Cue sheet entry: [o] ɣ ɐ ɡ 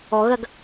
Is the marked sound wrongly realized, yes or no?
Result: yes